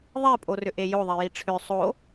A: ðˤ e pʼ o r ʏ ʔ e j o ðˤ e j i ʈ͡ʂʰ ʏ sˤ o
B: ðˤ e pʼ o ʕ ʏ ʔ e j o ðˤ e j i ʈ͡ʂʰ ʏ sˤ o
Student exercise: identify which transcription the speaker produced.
A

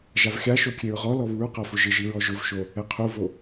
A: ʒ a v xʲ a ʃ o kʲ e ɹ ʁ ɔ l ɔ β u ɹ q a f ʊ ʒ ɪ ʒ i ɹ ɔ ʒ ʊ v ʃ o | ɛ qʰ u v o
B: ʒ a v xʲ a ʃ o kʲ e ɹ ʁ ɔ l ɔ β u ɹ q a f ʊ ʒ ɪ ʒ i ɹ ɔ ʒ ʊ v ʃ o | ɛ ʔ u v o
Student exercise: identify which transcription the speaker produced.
A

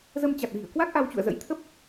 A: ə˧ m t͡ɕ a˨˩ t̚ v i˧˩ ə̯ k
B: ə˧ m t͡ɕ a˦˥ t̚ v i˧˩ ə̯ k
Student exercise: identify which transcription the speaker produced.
A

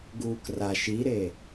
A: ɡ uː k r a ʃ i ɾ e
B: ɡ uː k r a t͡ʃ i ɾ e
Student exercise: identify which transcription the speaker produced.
A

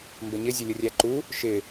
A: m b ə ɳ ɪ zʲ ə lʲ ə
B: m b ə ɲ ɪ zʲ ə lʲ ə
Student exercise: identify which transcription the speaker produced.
B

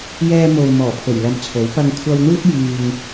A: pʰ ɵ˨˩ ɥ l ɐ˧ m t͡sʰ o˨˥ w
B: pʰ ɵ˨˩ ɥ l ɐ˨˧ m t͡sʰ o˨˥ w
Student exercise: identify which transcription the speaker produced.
A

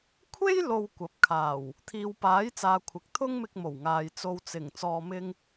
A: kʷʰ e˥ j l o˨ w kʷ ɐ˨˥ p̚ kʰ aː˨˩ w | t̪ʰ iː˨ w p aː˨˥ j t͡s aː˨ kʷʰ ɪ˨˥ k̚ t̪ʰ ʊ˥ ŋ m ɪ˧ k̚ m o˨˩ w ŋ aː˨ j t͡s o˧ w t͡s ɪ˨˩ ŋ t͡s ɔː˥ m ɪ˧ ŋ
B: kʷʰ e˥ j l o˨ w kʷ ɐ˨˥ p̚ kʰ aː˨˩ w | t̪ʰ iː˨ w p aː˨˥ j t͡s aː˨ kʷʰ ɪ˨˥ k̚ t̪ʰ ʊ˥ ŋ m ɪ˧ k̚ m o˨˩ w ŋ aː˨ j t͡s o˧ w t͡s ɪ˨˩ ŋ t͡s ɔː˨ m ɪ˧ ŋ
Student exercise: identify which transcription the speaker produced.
B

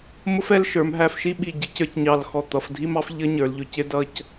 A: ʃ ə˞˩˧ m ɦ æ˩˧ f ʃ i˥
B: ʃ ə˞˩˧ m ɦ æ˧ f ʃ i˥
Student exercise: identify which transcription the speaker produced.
B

